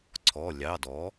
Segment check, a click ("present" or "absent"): present